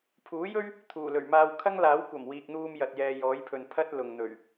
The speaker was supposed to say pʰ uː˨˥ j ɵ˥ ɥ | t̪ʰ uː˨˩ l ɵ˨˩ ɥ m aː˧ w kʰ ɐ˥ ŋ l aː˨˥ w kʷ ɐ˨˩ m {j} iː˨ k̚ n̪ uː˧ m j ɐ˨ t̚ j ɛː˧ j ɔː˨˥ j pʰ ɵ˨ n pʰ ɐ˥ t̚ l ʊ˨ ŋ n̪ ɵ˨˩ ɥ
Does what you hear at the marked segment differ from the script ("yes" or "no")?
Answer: yes